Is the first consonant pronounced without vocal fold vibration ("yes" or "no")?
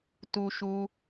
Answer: yes